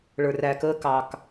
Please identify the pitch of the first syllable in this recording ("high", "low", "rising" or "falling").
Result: low